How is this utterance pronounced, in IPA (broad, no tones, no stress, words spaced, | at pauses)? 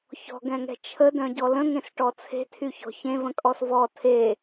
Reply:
çɔ̤ɡɛ̃ŋɛ̤ t͡ʃʰədœ̃ɟɔ lə̃ŋẽsʈɔ t͡sʰe̤tʰyçɔ̤ çẽvə̃kʼɔs vɔ tʰe